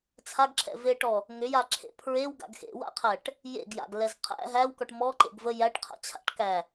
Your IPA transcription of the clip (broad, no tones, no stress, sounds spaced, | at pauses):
t͡sʰ a ɡ ǁʰ ɛ̰ v e ʈ ɔ | ŋ ʏ j a ǁʰ ḛ pʰ ɹ e w ɡ a̰ ɡ x ḛ w a̰ qʰ æ ʈ | j ḛ ɡ j a̰ ɡ l ɛ z qʰ æ̰ ɦ æ w k ɔ ʈ m ɔ ǃ ḛ ɡ v ə j æ ʈ qʰ a̰ t͡ɕʰ a̰ ʈ k æ